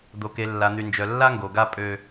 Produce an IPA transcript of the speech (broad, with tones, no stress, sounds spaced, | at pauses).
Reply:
d̪ o˨ k e˨ lː a˨ n̪ y˨ n d͡ʒ œ˨ lː a˦ ŋ ɡ o˨ ɡ a˦ pʼ ø˦